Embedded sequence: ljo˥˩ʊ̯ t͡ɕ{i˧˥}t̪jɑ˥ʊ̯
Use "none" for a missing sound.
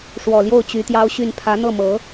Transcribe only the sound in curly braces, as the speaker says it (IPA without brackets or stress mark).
y˧˥